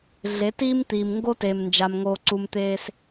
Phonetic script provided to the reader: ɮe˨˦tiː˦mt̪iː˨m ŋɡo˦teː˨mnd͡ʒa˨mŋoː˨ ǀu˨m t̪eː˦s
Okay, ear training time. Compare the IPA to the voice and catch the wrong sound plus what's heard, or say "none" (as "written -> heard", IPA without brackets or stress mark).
none